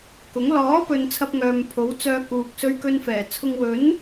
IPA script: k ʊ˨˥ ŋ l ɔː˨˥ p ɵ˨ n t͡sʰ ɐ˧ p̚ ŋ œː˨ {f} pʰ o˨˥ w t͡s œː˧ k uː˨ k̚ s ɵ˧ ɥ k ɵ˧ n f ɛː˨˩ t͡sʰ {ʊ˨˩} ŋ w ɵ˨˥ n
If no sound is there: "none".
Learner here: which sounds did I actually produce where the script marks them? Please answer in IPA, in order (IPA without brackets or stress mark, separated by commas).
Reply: m, ʊ˧